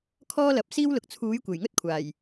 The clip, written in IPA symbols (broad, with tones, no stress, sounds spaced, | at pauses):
kʰ ɔː˥ l ɐ˨˥ p̚ s iː˥ w l ʊ˨ k̚ t͡sʰ uː˨˥ j kʷ e˨˩ j ŋ ɵ˥ t̚ kʷʰ aː˨˩ j